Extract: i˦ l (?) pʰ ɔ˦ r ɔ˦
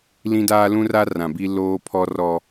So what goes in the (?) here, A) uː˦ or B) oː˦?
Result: B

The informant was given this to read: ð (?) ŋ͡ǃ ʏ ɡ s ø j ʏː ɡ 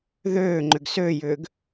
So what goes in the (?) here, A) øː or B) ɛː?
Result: A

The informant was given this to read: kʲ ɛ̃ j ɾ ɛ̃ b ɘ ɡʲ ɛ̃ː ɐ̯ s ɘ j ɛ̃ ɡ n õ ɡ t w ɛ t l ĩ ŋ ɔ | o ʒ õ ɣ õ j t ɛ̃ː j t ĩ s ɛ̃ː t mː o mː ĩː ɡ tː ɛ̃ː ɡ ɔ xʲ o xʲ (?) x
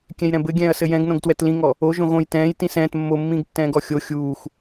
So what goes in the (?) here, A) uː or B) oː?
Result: A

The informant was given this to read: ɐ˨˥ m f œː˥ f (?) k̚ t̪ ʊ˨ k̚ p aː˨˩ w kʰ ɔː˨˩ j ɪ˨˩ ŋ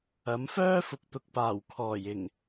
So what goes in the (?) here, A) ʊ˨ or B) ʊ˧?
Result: A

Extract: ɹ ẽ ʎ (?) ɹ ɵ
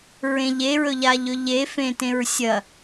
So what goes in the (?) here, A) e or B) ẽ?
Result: A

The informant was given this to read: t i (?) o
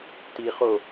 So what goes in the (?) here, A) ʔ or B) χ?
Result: B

